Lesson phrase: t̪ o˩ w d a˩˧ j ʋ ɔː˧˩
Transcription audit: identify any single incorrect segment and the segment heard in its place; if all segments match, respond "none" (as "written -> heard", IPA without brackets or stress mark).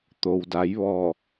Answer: none